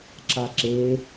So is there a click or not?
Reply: yes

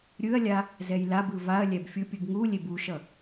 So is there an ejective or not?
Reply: no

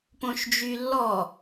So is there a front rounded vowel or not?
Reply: yes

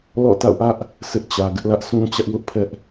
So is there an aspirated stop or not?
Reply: yes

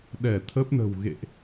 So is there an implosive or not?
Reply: yes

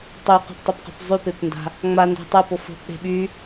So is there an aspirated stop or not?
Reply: no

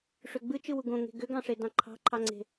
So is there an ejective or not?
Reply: no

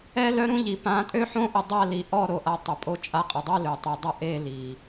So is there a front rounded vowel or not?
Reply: yes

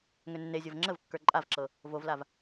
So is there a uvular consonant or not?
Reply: no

